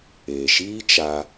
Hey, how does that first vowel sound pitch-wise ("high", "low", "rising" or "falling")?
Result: low